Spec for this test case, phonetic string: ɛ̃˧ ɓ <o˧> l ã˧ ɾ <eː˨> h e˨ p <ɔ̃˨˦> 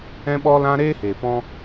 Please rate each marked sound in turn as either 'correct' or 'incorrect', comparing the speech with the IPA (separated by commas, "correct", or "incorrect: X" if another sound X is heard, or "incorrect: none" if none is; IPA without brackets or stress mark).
incorrect: ɔ˧, incorrect: eː˦, incorrect: ɔ̃˦